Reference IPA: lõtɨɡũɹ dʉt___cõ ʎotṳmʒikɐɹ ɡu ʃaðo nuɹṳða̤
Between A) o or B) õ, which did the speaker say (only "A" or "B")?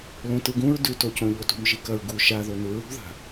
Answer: A